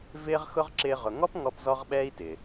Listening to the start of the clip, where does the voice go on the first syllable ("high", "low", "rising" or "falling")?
high